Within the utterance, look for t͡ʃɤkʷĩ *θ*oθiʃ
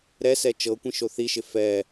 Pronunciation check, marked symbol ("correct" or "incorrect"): incorrect